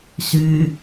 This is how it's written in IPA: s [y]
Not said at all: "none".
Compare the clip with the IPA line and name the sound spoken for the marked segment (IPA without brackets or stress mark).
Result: y